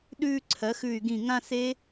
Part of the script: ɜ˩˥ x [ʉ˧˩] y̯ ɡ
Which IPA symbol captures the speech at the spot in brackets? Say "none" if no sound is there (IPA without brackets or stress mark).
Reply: ʉ˧˩